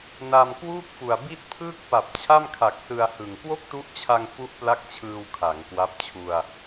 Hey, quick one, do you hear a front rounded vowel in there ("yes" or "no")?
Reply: no